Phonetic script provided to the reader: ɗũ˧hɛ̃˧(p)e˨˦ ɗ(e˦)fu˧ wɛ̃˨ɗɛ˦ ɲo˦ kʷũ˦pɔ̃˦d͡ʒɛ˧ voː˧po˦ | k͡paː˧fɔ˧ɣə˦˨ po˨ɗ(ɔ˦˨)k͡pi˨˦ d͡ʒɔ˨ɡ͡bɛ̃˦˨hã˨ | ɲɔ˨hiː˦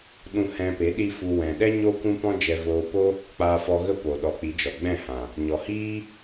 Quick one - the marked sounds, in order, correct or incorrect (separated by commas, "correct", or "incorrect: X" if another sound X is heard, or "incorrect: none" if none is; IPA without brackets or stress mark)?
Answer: correct, incorrect: i˦, incorrect: ɔ˨˦